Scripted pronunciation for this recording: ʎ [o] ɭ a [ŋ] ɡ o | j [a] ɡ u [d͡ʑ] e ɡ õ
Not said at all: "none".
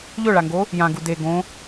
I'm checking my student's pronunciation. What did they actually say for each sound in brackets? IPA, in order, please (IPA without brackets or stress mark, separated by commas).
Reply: ɵ, ŋ, ã, d